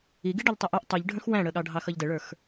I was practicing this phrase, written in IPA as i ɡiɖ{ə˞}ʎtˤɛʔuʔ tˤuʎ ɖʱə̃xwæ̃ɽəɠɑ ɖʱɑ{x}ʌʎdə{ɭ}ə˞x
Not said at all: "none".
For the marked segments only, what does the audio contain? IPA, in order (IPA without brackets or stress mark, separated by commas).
ʌ, x, ɭ